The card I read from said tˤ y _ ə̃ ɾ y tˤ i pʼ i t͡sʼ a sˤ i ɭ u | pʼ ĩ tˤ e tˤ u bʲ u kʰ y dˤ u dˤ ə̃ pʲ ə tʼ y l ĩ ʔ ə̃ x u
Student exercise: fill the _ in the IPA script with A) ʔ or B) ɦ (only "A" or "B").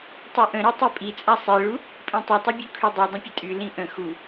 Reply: A